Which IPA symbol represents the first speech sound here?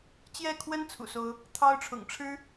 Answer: t͡ɕ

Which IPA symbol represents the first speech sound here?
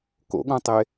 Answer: k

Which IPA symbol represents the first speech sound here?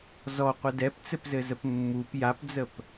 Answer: z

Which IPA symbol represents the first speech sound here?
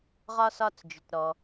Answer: ʁ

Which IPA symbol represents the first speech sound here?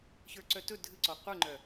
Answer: ç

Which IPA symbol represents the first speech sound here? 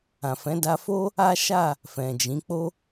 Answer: ã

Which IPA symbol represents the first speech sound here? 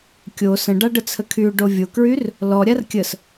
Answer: kʲ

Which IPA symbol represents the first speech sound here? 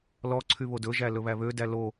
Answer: l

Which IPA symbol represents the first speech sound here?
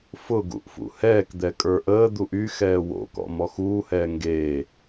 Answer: f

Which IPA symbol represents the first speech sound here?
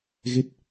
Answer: ɣ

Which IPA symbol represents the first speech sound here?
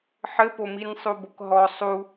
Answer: ħ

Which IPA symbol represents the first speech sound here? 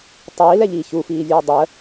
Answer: tˤ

